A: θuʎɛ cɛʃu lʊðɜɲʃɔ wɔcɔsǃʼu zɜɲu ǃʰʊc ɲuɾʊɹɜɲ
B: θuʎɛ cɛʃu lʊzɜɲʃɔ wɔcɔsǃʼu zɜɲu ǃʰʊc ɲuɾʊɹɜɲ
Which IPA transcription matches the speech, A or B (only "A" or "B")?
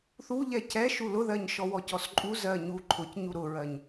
A